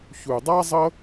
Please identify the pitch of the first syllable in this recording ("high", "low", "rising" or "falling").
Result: low